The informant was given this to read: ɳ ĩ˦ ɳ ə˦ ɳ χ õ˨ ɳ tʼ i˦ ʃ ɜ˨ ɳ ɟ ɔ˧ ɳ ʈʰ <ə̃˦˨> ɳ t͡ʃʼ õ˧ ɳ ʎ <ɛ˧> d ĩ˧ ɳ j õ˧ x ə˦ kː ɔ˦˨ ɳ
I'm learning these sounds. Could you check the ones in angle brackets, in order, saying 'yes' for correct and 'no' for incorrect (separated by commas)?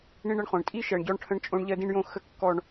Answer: no, no